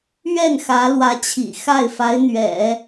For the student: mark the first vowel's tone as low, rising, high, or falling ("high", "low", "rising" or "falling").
falling